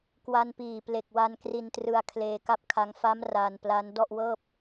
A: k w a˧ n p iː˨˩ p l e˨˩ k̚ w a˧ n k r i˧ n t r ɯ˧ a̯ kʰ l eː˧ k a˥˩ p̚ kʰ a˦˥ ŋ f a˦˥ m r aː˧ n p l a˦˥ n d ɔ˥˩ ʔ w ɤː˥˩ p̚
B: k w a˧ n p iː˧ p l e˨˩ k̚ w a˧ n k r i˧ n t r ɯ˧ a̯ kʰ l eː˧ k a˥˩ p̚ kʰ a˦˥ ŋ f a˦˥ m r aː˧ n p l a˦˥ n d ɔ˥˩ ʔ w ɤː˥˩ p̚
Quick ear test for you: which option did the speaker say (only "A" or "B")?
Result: A